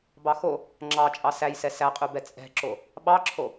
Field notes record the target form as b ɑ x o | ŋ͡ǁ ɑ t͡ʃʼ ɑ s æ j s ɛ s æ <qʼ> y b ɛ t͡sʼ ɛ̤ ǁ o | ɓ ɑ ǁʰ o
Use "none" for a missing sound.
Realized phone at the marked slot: qʼ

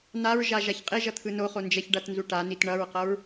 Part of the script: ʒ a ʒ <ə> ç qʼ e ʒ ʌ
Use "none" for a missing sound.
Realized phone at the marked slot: a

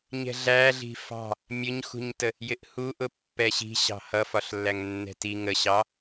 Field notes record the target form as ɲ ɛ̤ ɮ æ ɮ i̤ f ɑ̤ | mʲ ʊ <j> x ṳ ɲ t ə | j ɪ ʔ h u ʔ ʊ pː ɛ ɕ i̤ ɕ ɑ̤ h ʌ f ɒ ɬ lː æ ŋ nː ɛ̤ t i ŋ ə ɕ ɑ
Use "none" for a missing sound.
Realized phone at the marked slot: ɲ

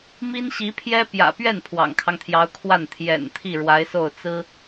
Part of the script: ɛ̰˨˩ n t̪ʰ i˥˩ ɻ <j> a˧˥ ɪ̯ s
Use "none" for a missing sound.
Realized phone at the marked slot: w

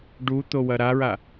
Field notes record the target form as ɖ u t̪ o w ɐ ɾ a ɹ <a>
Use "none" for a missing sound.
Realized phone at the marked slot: a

